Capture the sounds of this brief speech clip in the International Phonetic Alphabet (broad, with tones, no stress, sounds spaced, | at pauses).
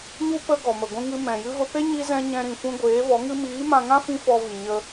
ɲ u˦ p ə˦ ɡ ɔ˨ m ə˨ ɡʷ ĩ˧ ŋ ɨ˧ m ɛ̃˨ j ɨ˧ v ə˧ p e˦ ɲ i˦ z ɛ̃˦ ɲ ɛ̃˦ ɾ ĩ˧ f ũ˦ ɡʷ eː˨˦ v ɔ˨˦ ŋ ɨ˦ m iː˨˦ m ã˧ ŋ ã˦ f ĩ˦ f ɔ˧ v i˨ ɲ ə˧